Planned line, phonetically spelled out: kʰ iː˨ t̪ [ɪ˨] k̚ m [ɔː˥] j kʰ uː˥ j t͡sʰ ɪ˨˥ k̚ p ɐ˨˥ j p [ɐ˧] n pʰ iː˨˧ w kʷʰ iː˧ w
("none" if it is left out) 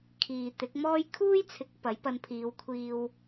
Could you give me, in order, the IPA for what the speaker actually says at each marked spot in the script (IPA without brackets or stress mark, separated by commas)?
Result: ɪ˨˥, ɔː˥, ɐ˧